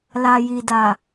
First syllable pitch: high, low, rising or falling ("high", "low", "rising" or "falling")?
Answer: low